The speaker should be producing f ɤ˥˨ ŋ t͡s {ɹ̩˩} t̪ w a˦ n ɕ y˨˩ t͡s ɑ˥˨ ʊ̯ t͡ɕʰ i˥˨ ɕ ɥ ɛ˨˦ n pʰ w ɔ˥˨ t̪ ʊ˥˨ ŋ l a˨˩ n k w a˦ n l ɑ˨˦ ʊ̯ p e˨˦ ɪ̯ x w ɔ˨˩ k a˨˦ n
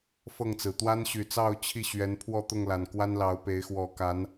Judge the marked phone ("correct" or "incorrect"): correct